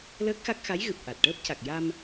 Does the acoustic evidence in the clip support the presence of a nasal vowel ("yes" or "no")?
no